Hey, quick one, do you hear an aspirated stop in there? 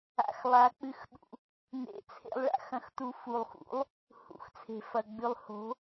yes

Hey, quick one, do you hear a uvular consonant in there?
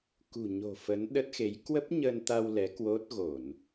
no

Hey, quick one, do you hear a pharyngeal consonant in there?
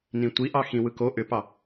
no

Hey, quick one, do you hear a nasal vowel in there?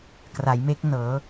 no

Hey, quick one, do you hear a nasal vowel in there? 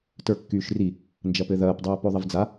no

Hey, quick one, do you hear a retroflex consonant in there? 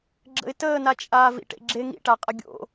yes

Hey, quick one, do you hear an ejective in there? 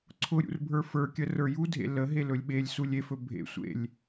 no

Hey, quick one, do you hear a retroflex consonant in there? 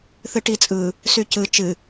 yes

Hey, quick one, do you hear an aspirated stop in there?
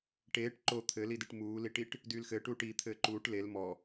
yes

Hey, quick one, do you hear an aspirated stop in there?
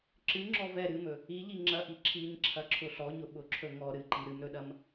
yes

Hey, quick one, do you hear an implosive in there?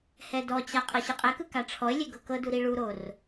no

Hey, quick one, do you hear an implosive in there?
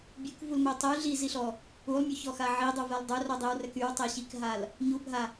no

